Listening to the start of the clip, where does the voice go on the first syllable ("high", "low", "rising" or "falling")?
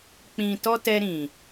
low